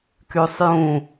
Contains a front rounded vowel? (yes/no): yes